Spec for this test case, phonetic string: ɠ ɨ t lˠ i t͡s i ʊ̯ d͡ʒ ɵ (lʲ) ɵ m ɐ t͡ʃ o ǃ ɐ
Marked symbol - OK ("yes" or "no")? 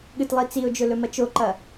no